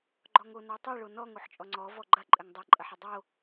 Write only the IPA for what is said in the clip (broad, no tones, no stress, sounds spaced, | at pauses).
ɡ͡ǃ ɔ ŋ o n ɔ tˤ i ɭ o n ɔ ŋ o ħ t͡ʃʼ ɔ ŋ͡ǀ ɔ v ɔ ɡ͡ǃ ɐ ǃʼ ɘ ŋ dˤ ɐ ǃʼ ɐ ħ ɘ dˤ o